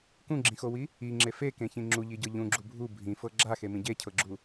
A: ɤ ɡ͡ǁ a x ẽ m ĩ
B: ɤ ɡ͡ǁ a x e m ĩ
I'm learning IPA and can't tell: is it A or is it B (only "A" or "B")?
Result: B